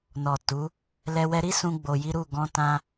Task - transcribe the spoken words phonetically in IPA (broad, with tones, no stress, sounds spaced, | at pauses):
n ɔ˨ t u˨˦ | l ɛ˧ w ɛ˧ ɾ i˦ s ũ˦ ɡ͡b o˧ j i˦ ɾ u˦˨ ɡ ɔ̃˧ t ã˧